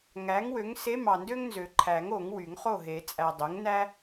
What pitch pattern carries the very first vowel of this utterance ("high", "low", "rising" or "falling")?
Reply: rising